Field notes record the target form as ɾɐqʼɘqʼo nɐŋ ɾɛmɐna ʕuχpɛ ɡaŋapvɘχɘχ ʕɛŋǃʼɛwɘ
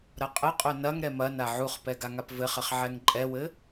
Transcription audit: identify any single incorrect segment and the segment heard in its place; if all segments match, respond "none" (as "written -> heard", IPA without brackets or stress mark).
none